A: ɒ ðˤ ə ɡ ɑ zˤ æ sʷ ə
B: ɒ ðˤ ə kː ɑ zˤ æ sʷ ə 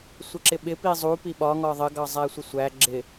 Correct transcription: A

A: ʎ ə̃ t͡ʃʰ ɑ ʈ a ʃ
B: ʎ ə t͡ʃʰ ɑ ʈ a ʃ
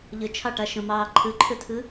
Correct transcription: B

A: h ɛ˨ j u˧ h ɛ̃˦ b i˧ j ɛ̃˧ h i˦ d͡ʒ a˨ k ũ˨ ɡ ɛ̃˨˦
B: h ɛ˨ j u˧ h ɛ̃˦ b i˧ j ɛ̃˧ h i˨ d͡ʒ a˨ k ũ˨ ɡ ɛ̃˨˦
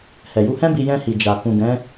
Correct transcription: B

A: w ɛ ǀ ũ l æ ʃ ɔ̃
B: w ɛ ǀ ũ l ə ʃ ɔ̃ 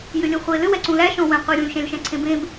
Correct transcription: A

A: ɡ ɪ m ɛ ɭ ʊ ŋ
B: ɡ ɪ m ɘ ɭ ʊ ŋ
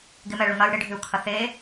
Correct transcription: A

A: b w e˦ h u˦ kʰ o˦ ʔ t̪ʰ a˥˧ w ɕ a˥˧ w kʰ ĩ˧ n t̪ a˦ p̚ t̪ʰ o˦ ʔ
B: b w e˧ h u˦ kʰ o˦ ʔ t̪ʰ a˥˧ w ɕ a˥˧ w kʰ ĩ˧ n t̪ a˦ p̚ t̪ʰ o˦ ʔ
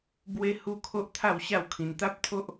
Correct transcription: A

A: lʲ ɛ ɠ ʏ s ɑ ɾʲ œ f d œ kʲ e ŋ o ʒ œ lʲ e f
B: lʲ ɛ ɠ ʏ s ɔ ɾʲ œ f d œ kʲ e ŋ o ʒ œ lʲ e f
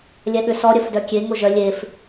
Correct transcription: B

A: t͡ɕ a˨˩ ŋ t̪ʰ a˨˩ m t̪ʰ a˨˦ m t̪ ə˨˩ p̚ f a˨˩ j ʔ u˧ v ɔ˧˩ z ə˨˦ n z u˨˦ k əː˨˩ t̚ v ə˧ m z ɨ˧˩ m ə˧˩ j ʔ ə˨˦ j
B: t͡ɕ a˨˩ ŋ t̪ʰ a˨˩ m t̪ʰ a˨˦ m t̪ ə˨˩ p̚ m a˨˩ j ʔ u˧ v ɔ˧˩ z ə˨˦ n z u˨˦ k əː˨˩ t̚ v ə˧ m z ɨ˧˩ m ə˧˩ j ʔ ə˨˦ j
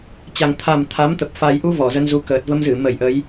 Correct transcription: A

